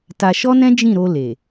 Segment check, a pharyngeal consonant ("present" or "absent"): absent